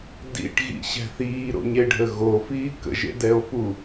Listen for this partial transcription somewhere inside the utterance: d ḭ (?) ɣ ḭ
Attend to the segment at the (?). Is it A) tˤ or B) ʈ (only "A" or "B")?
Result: B